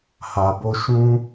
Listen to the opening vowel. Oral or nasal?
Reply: oral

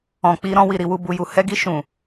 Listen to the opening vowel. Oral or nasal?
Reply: nasal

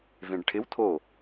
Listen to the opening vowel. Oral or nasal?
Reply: nasal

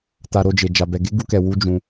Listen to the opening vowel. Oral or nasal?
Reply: oral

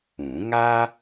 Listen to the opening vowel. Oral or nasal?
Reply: nasal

